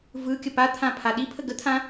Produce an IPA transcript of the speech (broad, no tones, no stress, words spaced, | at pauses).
vɯkʲə pat̪ʰãpʰa ɗipʰə ɡət̪ʰã